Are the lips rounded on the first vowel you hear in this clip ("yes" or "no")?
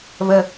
no